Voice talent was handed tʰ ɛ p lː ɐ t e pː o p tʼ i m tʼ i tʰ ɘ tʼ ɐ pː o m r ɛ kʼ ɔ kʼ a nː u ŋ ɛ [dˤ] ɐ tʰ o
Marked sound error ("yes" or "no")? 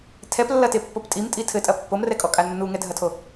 yes